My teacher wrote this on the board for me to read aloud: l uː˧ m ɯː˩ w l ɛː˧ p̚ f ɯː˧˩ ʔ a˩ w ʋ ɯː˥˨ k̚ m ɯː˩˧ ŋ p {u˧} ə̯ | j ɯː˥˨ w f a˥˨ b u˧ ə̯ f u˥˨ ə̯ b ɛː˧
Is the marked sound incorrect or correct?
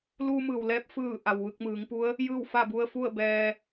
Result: incorrect